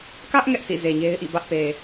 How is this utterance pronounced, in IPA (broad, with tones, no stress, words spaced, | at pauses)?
kä˦ʔ ŋɛ˦ʔsḭ˦˨ ze˨ɲe˦ɪ̯ʔḭ˦˨ bä˦ʔpe˨